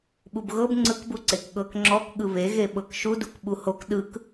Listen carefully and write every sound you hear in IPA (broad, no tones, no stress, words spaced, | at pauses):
ɓubɣɤb ŋ͡ǀɯkbuǀek ɠɤk ŋ͡ǁɔkɠɯ βeɣe ɓɤkʃu dukɓuhok ɗɯk